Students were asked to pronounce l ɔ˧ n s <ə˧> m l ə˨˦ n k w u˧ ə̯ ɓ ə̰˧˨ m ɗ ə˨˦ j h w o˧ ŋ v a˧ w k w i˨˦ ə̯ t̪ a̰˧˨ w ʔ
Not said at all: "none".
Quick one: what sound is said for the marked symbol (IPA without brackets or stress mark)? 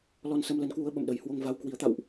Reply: ə˧